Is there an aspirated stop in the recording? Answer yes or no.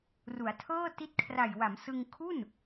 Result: yes